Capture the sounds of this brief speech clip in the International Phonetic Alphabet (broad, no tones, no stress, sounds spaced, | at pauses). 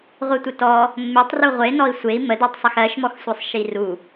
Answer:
ʁʷ e tʷ ɪ t ɔ | mː e tˤ r u ʁʷ e n ɔ i̯ sʷ e i̯ m ə d ɜ tˤ sˤ ə x ɜ ʃ m ɔ x sʷ e sˤ ʃ i r u